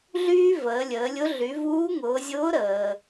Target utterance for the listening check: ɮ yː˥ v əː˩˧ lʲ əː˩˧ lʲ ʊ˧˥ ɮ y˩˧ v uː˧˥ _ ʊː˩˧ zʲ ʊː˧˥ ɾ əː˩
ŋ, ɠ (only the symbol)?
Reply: ŋ